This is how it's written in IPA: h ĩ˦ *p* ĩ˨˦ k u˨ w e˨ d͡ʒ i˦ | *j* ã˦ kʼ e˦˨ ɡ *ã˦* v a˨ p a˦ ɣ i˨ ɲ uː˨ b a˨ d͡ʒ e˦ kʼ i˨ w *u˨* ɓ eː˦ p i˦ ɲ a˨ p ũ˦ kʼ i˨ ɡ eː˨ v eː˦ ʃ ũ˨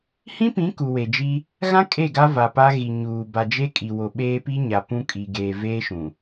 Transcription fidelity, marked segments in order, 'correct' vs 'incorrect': correct, incorrect: ɣ, incorrect: a˦, incorrect: o˨

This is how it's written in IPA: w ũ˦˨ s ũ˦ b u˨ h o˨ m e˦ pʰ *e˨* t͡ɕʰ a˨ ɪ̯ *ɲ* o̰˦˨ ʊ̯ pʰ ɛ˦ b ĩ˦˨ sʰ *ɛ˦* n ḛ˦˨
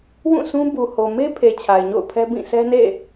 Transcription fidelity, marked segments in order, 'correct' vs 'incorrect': correct, correct, correct

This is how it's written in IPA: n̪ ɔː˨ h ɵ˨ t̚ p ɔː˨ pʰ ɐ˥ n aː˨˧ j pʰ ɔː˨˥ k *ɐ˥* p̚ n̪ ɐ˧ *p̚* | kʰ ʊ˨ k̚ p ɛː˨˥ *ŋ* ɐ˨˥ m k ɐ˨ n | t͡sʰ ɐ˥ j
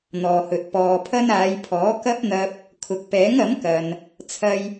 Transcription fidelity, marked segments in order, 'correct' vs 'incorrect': correct, correct, correct

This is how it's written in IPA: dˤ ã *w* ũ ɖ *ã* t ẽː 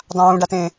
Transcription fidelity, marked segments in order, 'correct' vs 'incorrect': correct, incorrect: a

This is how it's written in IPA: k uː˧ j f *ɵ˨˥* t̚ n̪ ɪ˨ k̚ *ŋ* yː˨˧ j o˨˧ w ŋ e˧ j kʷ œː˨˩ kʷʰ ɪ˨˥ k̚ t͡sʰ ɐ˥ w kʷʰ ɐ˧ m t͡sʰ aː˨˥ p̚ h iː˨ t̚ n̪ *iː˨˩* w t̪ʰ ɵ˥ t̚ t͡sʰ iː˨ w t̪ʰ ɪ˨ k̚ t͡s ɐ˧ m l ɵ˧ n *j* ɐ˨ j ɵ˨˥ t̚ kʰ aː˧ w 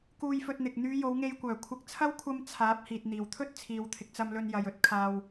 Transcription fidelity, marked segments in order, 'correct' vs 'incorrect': incorrect: ɵ˧, incorrect: n̪, correct, correct

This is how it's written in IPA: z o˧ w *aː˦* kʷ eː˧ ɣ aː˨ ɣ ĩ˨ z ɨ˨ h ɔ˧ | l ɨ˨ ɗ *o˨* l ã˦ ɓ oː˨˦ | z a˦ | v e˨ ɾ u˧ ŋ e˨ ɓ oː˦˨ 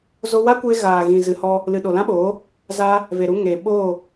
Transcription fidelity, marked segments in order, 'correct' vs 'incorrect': incorrect: a˦, correct

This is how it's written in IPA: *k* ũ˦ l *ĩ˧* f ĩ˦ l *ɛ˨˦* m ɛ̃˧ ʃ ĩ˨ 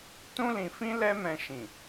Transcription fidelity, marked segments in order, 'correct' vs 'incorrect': incorrect: t, correct, incorrect: ɛ˦

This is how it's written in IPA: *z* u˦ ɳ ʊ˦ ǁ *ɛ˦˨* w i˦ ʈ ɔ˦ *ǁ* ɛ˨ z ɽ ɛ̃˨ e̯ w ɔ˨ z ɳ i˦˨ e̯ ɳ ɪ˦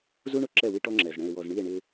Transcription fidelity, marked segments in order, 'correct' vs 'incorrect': correct, correct, incorrect: ŋ͡ǁ

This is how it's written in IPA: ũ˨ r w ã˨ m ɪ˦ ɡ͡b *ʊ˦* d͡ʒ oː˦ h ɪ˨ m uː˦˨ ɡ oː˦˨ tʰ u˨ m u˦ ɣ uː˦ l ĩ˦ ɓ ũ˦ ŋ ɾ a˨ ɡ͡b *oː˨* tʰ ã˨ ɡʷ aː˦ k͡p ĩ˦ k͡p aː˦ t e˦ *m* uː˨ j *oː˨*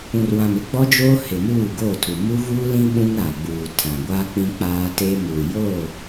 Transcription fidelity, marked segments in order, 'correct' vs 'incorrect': incorrect: ɔ˦, incorrect: uː˨, correct, incorrect: oː˦˨

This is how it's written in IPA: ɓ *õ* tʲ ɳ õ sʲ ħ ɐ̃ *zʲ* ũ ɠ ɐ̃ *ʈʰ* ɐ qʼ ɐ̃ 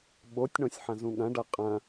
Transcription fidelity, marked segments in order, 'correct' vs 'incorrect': incorrect: o, incorrect: z, incorrect: ɖ

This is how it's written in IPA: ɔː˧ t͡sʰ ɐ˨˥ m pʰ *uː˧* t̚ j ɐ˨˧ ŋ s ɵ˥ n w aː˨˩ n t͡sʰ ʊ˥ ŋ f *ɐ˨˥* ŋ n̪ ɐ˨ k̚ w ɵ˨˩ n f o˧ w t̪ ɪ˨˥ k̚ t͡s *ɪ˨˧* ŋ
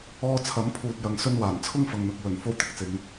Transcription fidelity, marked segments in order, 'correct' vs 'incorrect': correct, incorrect: ɐ˨, correct

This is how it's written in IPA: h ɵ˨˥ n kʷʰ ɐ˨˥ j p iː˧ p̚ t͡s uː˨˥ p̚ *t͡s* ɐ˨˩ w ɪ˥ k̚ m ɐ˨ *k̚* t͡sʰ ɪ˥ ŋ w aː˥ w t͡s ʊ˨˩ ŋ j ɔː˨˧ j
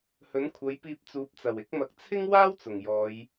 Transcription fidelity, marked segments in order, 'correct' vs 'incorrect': correct, correct

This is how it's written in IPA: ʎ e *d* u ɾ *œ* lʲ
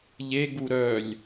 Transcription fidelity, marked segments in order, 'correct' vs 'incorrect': incorrect: ɡ, correct

